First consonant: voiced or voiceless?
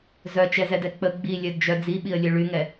voiced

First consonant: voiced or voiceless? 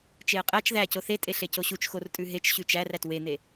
voiceless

